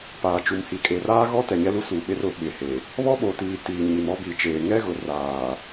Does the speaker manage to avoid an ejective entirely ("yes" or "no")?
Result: no